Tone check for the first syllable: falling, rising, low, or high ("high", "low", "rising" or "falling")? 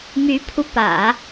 rising